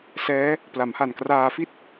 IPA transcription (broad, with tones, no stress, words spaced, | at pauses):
sɛː˦˥ | pla˩˦mha˨˩nkraː˧fi˥˩t̚